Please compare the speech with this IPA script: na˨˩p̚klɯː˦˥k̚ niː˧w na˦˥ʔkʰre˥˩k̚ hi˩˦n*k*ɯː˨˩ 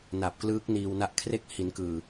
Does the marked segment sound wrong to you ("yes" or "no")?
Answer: no